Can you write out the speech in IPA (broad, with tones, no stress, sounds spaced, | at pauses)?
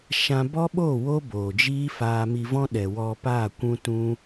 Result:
ʃ ã˧ b ɔ˦ ɓ oː˦˨ w o˦ b oː˨ d͡ʒ iː˦ f aː˧ m i˧ v ɔ̃˦ ɗ ɛ˨ w ɔ˧ p aː˦˨ kʷ ũ˦ t ũ˦